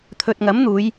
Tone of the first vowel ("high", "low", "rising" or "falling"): low